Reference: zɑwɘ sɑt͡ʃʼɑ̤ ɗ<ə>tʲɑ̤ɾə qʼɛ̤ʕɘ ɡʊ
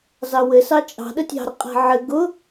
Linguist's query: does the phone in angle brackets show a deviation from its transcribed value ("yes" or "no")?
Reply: no